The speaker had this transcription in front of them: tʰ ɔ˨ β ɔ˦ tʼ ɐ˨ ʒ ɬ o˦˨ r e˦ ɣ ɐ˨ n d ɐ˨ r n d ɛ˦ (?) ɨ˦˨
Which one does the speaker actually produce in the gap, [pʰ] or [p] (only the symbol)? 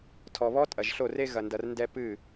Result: p